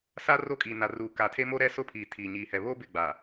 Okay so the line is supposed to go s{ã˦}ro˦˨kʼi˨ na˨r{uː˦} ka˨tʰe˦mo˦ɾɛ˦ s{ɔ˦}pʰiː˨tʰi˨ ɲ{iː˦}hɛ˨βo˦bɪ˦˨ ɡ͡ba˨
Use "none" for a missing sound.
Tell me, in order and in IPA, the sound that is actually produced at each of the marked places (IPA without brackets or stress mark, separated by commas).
a˦, uː˨, ʊ˦, iː˨